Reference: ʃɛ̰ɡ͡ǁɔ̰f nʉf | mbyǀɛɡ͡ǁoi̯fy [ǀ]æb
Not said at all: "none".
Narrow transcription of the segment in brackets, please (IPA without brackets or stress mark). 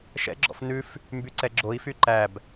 ǃ